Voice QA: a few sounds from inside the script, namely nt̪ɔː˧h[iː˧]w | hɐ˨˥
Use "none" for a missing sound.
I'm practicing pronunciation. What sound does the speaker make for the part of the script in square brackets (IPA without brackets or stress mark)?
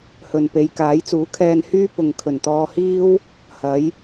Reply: iː˥